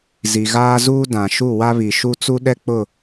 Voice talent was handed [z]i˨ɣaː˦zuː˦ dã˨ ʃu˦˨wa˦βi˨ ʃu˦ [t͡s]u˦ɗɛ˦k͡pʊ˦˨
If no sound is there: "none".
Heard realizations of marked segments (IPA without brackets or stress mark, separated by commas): z, t͡s